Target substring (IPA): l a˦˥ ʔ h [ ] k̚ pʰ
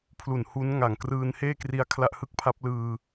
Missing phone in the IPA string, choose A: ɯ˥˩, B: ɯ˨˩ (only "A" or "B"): A